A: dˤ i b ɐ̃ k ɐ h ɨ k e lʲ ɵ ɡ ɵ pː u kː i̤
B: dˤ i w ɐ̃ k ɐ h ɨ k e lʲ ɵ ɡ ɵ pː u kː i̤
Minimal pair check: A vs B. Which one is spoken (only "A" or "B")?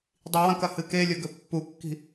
B